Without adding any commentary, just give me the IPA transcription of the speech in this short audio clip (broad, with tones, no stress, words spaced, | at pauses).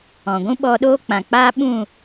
ɔ̃˨ ɡʷũ˦ɓɔ˧ɗoː˦ k͡pã˨k͡paː˦ ɓũ˦˨